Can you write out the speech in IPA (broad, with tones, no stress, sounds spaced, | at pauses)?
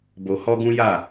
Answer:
b o˧ h ɔ˦ ɡ ũ˦ j a˦˨